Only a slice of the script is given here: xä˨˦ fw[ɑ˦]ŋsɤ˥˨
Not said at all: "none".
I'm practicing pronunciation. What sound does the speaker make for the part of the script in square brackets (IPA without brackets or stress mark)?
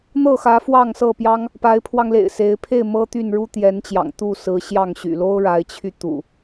ɑ˥˨